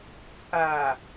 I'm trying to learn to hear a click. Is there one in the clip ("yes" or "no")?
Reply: no